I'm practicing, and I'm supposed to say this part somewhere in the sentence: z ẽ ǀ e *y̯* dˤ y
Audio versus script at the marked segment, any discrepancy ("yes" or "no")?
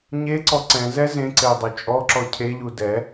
no